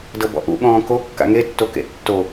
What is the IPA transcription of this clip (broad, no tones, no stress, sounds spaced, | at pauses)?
d ɤ b ɔ̰ ʔ ṵ ɠ ɔ̃ː k o kː a̰ ŋ e tː o k ḛ tː o